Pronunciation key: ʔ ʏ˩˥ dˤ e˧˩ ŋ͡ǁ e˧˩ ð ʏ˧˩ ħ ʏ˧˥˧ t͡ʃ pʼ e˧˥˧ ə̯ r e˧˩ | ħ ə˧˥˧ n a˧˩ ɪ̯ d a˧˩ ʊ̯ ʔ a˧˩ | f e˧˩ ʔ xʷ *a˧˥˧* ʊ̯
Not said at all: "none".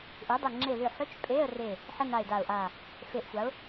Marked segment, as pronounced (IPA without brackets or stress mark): a˩˥